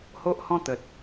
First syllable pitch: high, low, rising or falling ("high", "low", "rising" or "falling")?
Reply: high